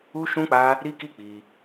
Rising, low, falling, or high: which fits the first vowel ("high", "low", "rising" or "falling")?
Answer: high